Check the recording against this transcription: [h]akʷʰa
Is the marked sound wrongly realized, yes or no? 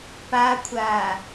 yes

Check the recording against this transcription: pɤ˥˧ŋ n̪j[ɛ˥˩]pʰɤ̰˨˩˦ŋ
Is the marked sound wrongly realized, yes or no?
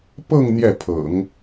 no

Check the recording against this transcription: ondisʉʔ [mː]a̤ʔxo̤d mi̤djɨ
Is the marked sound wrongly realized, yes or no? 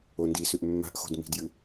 no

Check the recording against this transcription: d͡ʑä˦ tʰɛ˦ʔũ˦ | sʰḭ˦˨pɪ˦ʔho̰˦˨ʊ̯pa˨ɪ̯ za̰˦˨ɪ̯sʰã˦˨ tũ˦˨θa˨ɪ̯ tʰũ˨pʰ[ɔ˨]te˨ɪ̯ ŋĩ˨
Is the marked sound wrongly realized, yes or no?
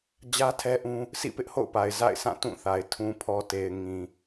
no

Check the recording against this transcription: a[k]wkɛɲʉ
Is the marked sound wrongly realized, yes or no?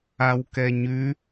yes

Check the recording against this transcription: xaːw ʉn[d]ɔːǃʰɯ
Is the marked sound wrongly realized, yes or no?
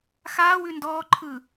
no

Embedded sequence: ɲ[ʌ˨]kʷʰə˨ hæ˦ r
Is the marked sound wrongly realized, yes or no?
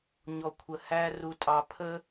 yes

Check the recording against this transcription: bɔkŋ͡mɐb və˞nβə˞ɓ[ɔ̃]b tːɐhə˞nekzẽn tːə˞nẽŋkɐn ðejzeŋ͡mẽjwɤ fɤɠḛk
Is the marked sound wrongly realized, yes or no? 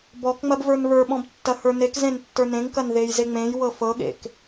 no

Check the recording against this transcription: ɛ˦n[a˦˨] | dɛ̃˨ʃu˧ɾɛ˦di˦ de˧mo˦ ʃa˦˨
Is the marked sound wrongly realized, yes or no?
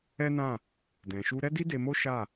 yes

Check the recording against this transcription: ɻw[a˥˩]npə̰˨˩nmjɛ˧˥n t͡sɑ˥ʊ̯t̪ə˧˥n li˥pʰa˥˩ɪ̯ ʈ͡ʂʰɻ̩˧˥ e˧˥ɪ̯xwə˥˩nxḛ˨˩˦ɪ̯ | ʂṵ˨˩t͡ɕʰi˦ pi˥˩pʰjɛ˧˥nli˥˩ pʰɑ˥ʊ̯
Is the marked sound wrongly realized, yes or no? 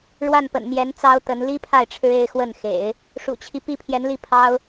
no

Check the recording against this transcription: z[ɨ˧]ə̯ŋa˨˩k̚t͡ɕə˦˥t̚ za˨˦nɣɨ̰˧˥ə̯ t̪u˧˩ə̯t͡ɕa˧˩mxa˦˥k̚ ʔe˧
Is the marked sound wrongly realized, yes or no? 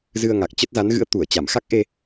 no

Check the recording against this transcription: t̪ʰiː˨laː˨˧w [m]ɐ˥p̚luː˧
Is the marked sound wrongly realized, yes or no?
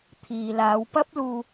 yes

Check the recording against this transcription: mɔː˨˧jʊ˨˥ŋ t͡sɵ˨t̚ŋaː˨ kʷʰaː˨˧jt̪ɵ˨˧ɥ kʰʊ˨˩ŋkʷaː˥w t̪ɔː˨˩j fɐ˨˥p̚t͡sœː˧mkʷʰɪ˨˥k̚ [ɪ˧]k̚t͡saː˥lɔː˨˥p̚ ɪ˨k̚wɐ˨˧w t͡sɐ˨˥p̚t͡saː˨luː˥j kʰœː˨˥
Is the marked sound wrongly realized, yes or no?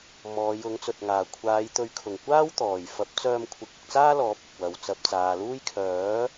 no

